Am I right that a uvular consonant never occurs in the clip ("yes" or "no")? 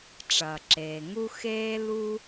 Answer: yes